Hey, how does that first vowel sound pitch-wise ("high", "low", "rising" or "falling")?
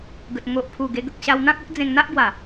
low